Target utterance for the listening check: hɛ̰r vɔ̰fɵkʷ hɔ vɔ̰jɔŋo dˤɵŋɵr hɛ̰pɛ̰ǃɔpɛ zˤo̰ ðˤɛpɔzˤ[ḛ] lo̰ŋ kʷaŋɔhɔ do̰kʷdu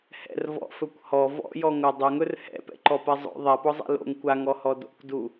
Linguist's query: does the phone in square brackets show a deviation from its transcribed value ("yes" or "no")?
yes